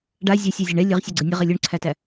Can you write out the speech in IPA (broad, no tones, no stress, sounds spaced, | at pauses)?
ɖ a zʲ æ sʲ ɛ zʲ ɛ ɳ ɛ lʲ ə ʁ sʲ ɛ ɡ͡ǀ ə nʲ ə ʁ ɛ lʲ u ɳ ǀʰ æ t æ